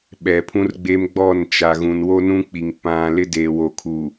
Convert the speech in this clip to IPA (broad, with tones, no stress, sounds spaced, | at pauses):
ɓ ɛ˨ pʰ ũ˦ r ɡ͡b e˦ m ɡ͡b ɔ˦˨ n t͡ʃ a˨ ɣ ũ˨ n w o˦ n ũ˦ k͡p i˨ ŋ p ã˨ l ɪ˦ d e˨ w o˨ kʰ u˨